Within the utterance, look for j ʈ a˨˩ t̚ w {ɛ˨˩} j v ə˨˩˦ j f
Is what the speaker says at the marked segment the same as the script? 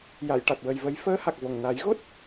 no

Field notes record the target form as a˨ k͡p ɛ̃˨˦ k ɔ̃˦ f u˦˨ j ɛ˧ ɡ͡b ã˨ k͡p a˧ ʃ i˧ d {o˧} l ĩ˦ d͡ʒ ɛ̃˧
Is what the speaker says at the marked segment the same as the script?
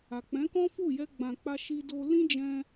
yes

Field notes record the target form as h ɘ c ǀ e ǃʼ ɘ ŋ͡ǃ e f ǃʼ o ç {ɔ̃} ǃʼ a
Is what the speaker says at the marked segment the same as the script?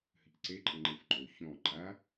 yes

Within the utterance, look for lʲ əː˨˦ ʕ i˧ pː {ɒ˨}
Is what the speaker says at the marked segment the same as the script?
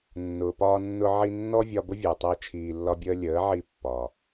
yes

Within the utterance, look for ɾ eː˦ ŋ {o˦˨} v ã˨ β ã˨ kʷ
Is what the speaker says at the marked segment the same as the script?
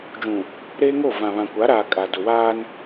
yes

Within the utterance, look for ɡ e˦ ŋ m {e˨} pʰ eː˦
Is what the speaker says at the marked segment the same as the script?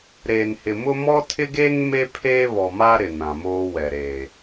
no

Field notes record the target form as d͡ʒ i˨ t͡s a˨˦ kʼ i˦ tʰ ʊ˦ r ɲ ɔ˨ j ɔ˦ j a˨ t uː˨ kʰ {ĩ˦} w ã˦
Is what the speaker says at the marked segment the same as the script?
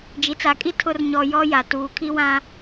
no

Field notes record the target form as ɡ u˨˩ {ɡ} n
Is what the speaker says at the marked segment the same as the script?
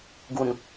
no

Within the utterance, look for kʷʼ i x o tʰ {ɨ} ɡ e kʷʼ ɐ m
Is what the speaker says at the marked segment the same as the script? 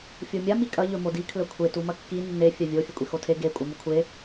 no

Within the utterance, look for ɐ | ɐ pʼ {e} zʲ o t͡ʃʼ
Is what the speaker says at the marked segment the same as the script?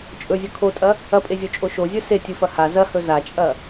yes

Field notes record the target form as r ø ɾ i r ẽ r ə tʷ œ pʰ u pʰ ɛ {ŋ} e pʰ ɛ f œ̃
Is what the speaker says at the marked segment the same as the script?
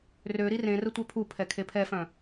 no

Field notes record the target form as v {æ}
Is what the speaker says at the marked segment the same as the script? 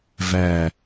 yes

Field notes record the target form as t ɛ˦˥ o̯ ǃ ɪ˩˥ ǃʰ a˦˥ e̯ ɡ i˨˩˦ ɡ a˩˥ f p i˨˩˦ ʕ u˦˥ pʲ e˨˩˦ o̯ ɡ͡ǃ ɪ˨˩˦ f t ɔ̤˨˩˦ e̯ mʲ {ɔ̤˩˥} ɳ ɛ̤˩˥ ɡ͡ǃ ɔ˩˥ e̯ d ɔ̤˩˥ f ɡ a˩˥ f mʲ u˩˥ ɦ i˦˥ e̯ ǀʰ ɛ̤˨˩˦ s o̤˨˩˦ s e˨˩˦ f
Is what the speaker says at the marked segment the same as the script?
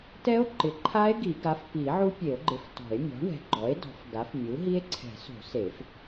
yes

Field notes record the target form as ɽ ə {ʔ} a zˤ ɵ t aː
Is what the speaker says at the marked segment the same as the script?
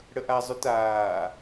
yes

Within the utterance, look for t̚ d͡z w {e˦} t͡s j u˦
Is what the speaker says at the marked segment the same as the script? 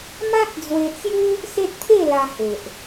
no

